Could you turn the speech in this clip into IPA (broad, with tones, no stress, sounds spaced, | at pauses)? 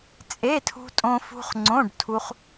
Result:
t͡sʼ e˧˥˧ tʰ ṳ˧ tʼ õ˧ f ṳ˧ χ ŋ͡ǀ õ˧˥˧ ɖ tʰ u˧ χ